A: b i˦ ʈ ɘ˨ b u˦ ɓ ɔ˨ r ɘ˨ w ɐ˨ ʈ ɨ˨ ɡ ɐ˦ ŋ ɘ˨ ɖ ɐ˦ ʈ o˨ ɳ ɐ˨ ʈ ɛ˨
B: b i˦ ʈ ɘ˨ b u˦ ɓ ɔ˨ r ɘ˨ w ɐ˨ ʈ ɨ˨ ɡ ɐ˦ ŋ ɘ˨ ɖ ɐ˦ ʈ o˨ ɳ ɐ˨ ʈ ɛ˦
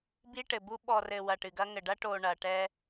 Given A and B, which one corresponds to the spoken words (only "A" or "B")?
B